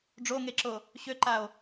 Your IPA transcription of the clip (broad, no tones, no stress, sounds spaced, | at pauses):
ɖ͡ʐ o ŋ e ǁ o | ɕ ø ǃ a o̯